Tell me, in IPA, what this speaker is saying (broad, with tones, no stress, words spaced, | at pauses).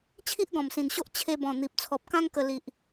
t͡ɕʰi˦ʔɡɔ̃˨˩msĩ˨˩nɕo˦ʔ t͡ɕʰe˧bɔ̃˨˩n̪i˨p̚ t͡sʰɔ˨p̚kã˦ŋ kə˧ li˨ʔ